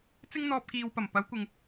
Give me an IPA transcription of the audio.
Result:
t͡s ɪ˥ ŋ n̪ ɔː˧ p̚ k iː˨ w p ɐ˨˩ m p ɐ˨˧ w kʷ ɪ˨ ŋ

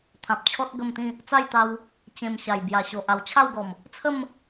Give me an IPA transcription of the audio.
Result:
t̪ʰ ã˨ p̚ t͡ɕʰ ɔ˦ t̚ ɡ ə˥˧ m t̪ ĩ˥˧ | t͡s a˥˧ j t̪ a˧ w | t͡ɕ ẽ˧ m ɕ a˨˩ j b j a˨˩ ɕ o˨ ʔ a˨˩ w t͡ɕʰ a˥˧ w ɡ ɔ˨˩ m | t͡sʰ ə˥˧ m

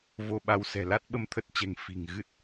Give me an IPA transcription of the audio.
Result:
v o˧ ɓ a˧ w s ɛ̤˨˩ l a˦˥ t̚ ɓ ə˧ m t̪ʰ ə˦˥ t̚ t͡ɕ ɛ̤˨˩ ŋ f i̤˨˩ ŋ ɣ ɨ˦˥ t̚

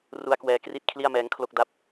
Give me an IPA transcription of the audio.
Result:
r u˦˥ a̯ k w ɛː˧ k r i˥˩ t̚ kʰ l i˥˩ a̯ m ɛː˦˥ ŋ kʰ l o˥˩ k̚ d a˦˥ p̚

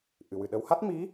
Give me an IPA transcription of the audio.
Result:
ʔ ɨ˨˩˨ w ɨ˨˩ ɗ ə˧˥ w h a˦˥ t̚ m i˧˥

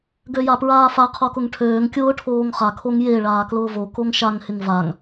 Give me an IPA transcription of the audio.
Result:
ɡ ø j a p ɹ aː f a qʰ o k ʊ ŋ ʈʰ øː ŋ kʲ ʊː ʈʰ oː ŋ χ a kʰ o ŋ j e ɭ aː k l ʊː v o k o ŋ ʃ a ŋ h ɪ ŋ v a ŋ

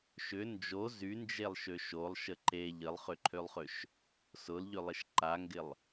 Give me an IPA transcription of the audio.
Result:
ʃ ʏ n d͡ʒ o z y n d͡ʒ e lˠ ʃ ø ʃ o lˠ ʃ ə ǃ e ʎ ə lˠ χ ʏ ǃʰ ø lˠ χ ø ʃ | s ʊ l ʎ ø lˠ ɪ ʃ ǃ a ŋ ɡ ɪ lˠ

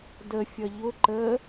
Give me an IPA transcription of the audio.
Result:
d ə fʲ ʌ ʎ ʊ ǃ ə

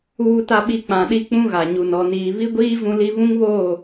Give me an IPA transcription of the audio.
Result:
uː˨ t a˨ ɓ i˨ k͡p ã˨ ɗ i˦ k͡p ũ˦ ɣ a˨ ɲ u˨ n ɔ˨ n iː˨ β i˦ ɡʷ iː˦ v ũ˦ l i˦ β ũ˦ ŋ β oː˦˨

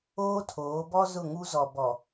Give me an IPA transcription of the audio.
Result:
oː˦ tʰ oː˨˦ b ɔ˦ z ʊ˦˨ ŋ u˦ z ɔ˨ b ɔ˨

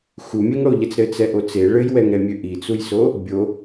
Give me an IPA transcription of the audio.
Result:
x u mʲ e ŋ ɽ o ʎ ɛ t͡s ɾ ɘ t͡s ɛ ʔ o t͡s e ɭ ɘ j w ɛ ŋ ɾ ɛ mʲ ø ʔ i t͡s u j s o | bʲ o

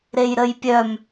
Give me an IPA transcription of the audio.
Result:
ɾ e j ɾ ə j pʲ œ m

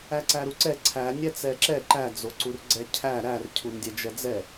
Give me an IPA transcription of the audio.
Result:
æ ǀ æ ɾ u ǀ ɛ ǀʰ æ nʲ ɛ t͡s ɛ ǁ ɛ ǃ æ d͡z o ǀ u r ɡ͡ǀ ɛ cʰ æ ɾ æ r cʰ u n dʲ ɛ d͡ʒ ɛ d͡z ɛ

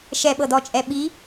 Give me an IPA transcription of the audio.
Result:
ʃ ɛ ɓ ɤ d ɔ t͡ʃʼ ɛ ɓ i

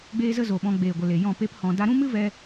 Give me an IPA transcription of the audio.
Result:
ɡ͡b eː˦ z ə˦ z o˨ ɓ ɔ̃˧ ɡ͡b eː˨ ɡʷ ə˨ l e˨ j ɔ̃˦˨ p e˦ p h ɔ̃˧ d a˧ ɾ ũ˦ m ɨ˦ v ɛ˦

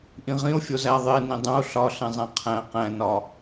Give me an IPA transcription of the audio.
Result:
ʔ ĩ ʁ ĩ o̯ fʲ o z æ ðˤ e n ĩ dˤ ũ o̯ ɬ ɒ ɬ ẽ zˤ æ̃ qʰ æ̃ q æ̃ n ɒ

